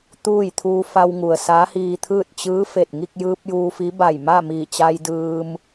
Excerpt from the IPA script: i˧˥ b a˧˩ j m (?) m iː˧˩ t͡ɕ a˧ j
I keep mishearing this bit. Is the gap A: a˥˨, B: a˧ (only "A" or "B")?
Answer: A